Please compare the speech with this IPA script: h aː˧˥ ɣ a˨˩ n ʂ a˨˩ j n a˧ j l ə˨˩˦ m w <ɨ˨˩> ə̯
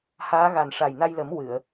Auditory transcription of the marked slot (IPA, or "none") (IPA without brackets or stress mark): ɨ˨˩˨